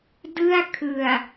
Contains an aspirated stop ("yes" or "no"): yes